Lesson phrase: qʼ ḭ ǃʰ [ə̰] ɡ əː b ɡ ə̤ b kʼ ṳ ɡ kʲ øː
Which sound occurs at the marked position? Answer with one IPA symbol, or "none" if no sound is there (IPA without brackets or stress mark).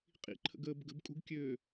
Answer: ə̰